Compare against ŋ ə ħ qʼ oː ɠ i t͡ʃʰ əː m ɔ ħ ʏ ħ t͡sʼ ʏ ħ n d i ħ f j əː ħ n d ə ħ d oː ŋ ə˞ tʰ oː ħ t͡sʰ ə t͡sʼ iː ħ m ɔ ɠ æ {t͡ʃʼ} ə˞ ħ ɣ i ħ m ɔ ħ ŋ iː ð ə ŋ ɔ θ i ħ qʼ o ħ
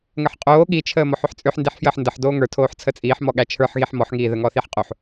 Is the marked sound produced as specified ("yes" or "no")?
no